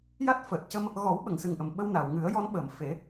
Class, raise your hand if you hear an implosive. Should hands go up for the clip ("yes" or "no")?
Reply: yes